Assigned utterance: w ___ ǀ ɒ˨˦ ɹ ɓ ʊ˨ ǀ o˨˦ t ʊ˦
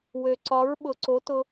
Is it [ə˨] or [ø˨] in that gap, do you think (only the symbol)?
ø˨